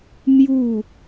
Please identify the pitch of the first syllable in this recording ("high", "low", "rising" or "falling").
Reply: falling